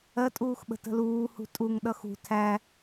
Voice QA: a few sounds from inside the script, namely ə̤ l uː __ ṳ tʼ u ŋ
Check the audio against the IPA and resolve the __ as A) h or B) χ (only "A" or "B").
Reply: A